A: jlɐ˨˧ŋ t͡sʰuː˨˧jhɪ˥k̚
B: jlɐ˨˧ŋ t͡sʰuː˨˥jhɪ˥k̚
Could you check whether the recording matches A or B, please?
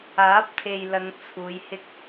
A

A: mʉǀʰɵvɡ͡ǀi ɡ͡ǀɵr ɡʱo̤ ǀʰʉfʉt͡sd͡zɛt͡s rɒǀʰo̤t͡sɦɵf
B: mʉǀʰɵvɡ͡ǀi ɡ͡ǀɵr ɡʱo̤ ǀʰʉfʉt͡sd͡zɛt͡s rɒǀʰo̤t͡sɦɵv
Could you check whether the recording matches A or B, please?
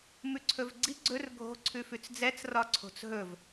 B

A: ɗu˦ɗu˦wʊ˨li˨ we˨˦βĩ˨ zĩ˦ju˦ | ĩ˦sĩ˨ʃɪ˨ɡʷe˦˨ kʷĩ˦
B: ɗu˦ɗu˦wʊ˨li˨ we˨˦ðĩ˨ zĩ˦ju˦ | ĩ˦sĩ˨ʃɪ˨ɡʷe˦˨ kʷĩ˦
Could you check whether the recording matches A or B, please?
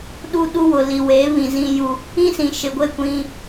A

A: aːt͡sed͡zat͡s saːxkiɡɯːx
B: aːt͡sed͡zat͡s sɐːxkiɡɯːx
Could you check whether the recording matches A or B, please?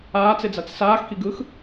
A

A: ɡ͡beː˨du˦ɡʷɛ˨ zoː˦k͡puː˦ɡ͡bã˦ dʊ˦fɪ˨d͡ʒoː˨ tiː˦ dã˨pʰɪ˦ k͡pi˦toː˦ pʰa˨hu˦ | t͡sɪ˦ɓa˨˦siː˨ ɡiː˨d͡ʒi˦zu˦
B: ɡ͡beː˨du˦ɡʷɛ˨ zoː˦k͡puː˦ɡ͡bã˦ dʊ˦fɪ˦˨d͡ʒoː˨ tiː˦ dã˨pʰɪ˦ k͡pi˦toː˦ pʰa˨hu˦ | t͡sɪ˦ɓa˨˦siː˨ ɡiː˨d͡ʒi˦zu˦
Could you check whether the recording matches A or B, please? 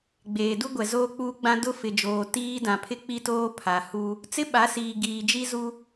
A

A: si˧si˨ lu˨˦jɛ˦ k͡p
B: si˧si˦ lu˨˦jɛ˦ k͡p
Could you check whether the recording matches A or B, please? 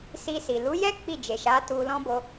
A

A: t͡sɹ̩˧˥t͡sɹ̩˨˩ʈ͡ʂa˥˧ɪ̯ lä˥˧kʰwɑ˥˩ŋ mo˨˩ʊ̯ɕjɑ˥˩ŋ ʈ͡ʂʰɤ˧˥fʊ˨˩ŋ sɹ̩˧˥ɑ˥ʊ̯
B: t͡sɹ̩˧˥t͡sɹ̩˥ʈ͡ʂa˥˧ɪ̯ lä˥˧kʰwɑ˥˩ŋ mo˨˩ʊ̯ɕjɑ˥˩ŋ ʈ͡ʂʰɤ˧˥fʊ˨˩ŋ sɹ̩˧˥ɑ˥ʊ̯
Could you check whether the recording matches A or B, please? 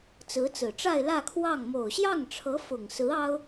A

